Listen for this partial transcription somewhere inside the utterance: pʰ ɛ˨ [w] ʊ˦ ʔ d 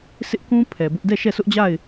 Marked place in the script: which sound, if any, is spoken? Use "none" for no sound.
b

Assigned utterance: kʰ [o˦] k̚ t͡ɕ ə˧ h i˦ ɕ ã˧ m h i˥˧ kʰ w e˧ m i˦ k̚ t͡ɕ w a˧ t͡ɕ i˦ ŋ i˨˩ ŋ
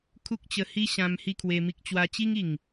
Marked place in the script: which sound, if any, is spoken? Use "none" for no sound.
u˦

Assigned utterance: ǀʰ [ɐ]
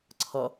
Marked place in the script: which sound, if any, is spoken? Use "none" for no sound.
ɐ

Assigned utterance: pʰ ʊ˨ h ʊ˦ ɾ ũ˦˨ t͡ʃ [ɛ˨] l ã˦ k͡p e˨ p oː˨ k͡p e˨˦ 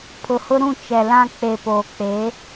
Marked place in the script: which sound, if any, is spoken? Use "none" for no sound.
ɛ˨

